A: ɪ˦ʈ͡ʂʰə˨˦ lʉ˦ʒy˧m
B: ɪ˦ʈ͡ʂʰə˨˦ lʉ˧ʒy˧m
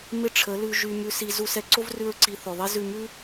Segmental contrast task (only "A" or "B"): B